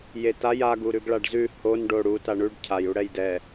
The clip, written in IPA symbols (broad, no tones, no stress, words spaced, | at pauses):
jetaj aɡ uɾʉɡɭaɖzʉ hon ɖoɽu taɳʉɖ cʰaj uɽɛjdɛ